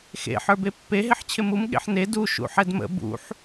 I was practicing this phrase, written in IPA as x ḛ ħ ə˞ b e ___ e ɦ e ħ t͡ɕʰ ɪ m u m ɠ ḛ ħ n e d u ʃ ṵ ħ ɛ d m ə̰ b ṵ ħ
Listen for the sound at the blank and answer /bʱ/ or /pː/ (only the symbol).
pː